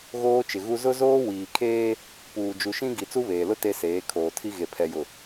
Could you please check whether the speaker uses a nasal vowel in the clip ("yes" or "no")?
yes